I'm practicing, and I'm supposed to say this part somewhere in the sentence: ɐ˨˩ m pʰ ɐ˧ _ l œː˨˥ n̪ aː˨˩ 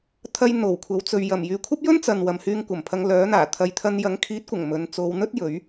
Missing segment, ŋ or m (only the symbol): ŋ